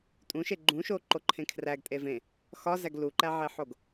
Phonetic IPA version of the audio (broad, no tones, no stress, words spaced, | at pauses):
tʼũʃe ɡ͡ǃũʃoǃo ǃʰẽkʰræɡtʼe vẽ | xɒzæɡ luǃæʕeħoɡ